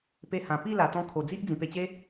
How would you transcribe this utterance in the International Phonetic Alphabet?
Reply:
p e˧ h ã˨˩ p i˥˧ l a˨˩ t̪ ɔ̃˧ kʰ o˨˩ d͡z i˦ ʔ d͡z ĩ˨˩ p e˧ t͡ɕ e˦

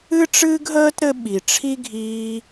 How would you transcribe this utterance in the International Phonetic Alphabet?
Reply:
ɨ˥ ʈ͡ʂ ɨː˥ ɡ ɦ əː˥ t ɾ ɘ˦ ɓ i˨ ʈ͡ʂʰ i˥ ɡʱ iː˦

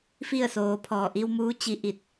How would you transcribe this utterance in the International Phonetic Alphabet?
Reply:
f i˥˨ ə̯ s oː˩ pʰ ɔː˧˩ ʔ i˧ w m uː˧˥ t͡ɕ i˧ ʔ i˧˩ t̚

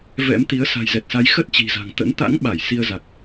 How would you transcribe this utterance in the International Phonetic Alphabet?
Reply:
v ɛ̰˧˥ m t̪ i˨˦ ə̯ s a̤˨˩ j z ɛ˨˩ t̚ s a˨˦ j x ə˦˥ t̚ t͡ɕ i̤˨˩ z a̤˨˩ ŋ t̪ ə̰˧˥ n t̪ a̰˧˥ ŋ ɓ a˧˩ j s i˧ ə̯ z a˨˩ k̚

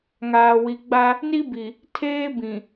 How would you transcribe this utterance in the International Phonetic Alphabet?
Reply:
ŋ aː˨ w i˨ ɡ͡b a˦ | n i˦ b i˨ | tʰ eː˦ b ĩ˨

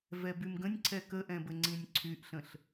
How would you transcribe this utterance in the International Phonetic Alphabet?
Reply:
v ɛ b y m ɡ ə̃ nʲ ǀʰ ɛ k ə ʔ ɛ̃ b ə ŋ͡ǀ ĩ nʲ ǀʰ y ʔ ɬ ə̃ ɬ

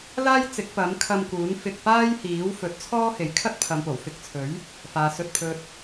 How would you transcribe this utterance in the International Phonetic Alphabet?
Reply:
l aː˥ j t͡s ɪ˨˥ k̚ p ɐ˨˥ m kʰ ɐ˧ m k uː˨˥ n f ɪ˧ k̚ p aː˥ j h iː˨˥ w f ɵ˨˥ t̚ t͡sʰ ɔː˥ h e˨˥ j kʰ ɐ˥ t̚ pʰ ɐ˨˧ m p o˨˩ w f ɪ˧ k̚ t͡sʰ ɵ˨˥ ɥ | f aː˨ s ɵ˨ t̚ pʰ ɵ˨ t̚

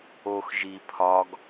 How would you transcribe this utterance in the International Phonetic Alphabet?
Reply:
o x ʒ i pʰ ɒ ɡ

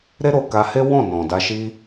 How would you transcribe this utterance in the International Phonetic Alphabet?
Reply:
ɾ e˦ ɾ o˧ k a˧ h e˦ w ɔ̃˦˨ n ɔ̃˨ d a˧ ʃ i˦

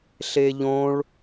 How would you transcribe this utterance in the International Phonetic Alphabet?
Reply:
ɬ e ʎ õ ɭ

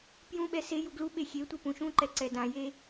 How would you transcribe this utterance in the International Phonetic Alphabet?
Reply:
p j ũ ɓ ɛ s e j u ɡ l u ɓ e xʲ e tʷ e p ũ ʃ ũ ǃ ɛ ǀ ɛ d ã j e

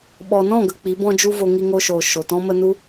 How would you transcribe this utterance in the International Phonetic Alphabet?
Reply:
ɓ ɔ˨ n ɔ̃˦˨ ɡ ə˨ k͡p i˨˦ b ɔ̃˦ d͡ʒ u˦ v o˧ ŋ i˧ ŋ o˧ ʃ oː˨ ʃ o˨ t ɔ̃˦ m ə˦ n u˦

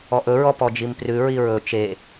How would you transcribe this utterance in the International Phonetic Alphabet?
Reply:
ɔ ʔ ɵ ɹ ɔ p ɔ d͡ʒ i m p r ʉ ɹ i ɹ ɵ t͡ʃ e

